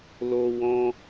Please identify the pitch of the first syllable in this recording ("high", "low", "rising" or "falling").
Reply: high